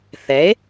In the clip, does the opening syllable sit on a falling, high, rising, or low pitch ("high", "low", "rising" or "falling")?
rising